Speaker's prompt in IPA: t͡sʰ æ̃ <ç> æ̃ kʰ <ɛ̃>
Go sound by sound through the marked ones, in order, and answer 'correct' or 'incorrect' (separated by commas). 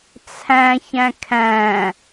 correct, incorrect